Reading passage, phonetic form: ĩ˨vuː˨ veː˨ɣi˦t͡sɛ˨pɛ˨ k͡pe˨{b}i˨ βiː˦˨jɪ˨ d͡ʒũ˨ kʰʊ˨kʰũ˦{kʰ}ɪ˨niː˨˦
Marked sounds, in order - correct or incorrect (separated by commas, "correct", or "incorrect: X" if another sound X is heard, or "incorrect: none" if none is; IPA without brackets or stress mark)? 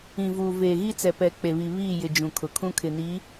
incorrect: β, correct